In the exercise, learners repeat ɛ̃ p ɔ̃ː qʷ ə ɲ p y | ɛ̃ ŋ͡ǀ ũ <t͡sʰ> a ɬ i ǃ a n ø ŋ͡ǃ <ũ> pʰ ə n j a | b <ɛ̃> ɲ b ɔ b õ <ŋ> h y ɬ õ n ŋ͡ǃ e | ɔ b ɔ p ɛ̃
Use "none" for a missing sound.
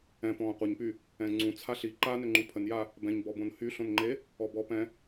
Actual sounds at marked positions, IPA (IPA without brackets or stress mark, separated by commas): t͡sʰ, ũ, ɛ̃, n